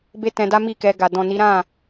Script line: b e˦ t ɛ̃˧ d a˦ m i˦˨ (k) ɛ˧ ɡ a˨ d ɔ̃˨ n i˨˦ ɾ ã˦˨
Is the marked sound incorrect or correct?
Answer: correct